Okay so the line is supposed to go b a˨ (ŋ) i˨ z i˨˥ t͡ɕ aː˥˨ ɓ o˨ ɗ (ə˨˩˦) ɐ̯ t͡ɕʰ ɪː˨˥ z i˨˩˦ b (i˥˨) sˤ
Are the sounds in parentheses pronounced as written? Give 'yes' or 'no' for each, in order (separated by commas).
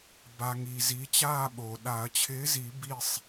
yes, no, yes